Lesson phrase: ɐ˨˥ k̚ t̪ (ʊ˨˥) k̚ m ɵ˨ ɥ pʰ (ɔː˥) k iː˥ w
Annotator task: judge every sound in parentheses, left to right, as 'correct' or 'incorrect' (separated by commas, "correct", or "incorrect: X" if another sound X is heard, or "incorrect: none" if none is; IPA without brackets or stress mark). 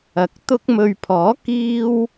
incorrect: ʊ˧, incorrect: ɔː˨˥